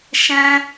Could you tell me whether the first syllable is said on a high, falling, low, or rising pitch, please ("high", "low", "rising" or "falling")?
high